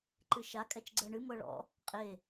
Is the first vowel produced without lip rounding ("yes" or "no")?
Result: yes